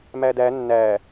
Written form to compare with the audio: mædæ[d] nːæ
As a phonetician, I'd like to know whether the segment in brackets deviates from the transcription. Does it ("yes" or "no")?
yes